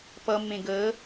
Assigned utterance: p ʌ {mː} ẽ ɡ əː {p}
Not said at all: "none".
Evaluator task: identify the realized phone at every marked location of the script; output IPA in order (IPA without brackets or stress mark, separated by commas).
mː, none